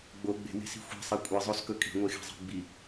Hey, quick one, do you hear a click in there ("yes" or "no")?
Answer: no